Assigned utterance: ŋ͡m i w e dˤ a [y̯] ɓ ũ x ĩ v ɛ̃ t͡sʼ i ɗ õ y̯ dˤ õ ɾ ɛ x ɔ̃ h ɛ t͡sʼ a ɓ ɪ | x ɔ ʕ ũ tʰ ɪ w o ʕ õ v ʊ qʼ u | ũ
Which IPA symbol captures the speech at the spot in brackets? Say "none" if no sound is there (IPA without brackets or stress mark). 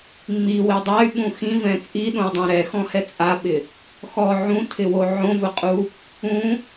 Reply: y̯